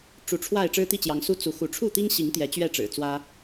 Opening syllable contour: rising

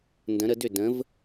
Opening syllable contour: rising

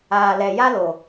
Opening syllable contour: low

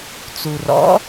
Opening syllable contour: low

